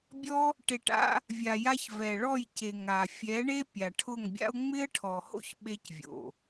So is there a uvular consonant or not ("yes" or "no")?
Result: no